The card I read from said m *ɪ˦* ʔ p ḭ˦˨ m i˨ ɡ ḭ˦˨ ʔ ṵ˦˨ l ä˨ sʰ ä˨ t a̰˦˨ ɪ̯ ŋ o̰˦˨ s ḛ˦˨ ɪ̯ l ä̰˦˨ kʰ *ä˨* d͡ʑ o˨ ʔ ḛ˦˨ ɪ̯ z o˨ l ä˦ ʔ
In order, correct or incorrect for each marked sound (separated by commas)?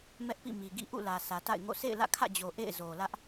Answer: incorrect, incorrect